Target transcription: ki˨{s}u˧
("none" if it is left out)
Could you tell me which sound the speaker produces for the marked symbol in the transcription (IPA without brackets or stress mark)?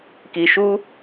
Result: ʃ